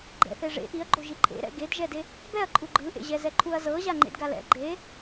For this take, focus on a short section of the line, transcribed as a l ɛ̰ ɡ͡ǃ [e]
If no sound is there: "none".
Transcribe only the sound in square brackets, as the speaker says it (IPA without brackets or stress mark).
e